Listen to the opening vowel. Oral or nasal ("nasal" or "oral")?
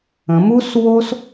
nasal